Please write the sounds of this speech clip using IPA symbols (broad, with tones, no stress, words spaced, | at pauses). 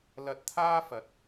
lɐ˧t̚t̪ʰaː˥fɐ˨t̚